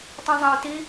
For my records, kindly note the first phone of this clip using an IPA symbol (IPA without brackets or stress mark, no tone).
tˤ